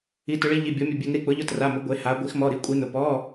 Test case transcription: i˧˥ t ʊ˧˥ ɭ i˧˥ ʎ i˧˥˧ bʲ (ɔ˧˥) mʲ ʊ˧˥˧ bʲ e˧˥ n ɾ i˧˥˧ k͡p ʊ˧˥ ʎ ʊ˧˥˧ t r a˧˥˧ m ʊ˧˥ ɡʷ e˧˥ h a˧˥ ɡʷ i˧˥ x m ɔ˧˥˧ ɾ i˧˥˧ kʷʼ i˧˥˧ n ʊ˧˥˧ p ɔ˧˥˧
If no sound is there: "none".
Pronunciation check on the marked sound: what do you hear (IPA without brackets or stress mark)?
ɔ˧˥